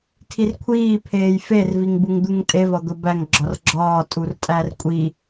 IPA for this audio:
tʰ i r kʷʰ iː pʰ eː j f e r v i ŋ b u ŋ d̪ u ŋ tʼ e v ɒ d̪ o b æ ŋ ɡ͡ǁ ɒ r ɡ͡ǁ ɒː tʼ u r tʼ æ r kʷʼ i

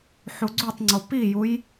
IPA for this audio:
ħ u ɡ͡ǀ u tˤ ŋ͡ǀ o p i j u j

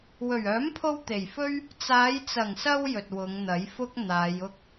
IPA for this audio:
w ɵ˨˩ ɥ œː˨˥ m pʰ o˧ w t̪ e˨˩ j f ɵ˥ ɥ | t͡s aː˨˧ j t͡s ɐ˨˩ ŋ s ɐ˧ w j ɵ˨ t̚ w ʊ˨˧ ŋ n̪ ɐ˨˥ j f ʊ˥ k̚ n̪ aː˨˧ j ʊ˥ k̚

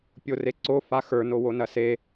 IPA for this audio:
pʲ o r e ǀ o f a x ə˞ n o w o n ɐ s e

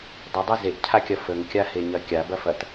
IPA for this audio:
dˤ ə dˤ ɐ z e ʔ cʰ a kʲ ɐ f ə ŋ kʲ a h e ɲ ɐ kʲ a b ɐ f ɐ t

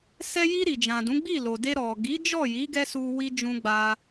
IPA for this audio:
s ɛ˧ j i˧ ɾ i˨ d͡ʒ ã˨ d ũ˨˦ ɡ͡b i˦˨ l o˨ d e˧ ɾ ɔ˨ ɡ i˨˦ d͡ʒ ɔ˦˨ j i˨˦ ɡ ɛ˦ s u˧ w i˧ d͡ʒ ũ˧ ɡ͡b a˦

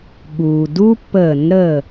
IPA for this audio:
ɠ uː˩ d u˦ pː əː˧˩˧ n ɾ ə˧˩

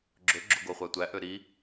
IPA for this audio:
ɡ͡ǁ ɵ ɡ͡ǁ o ɡ o χʷ æ tʷ æ ʔ ø ɾ i

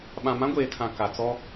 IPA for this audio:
ɓ ã˨ m ã˦ ɡʷ eː˨ tʰ ã˨ k a˨ t͡s ɔ˦

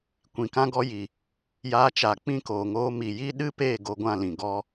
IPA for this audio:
kʷ ĩ˨ k ã˧ ɡ ɔ˧ j i˨ | j aː˧ t͡ʃ a˨ k͡p ĩ˦˨ k oː˨ ŋ oː˧ m i˨ j i˦ ɗ ɨ˦ p e˦˨ ɡ o˧ ɡʷ ã˦˨ l ĩ˨ ɡ ɔ˧

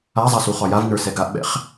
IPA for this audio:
a zˤ a s u χ ɒ j a v n ə˞ s ɛ ɡ a ʔ ɓ ɛ̰ χ

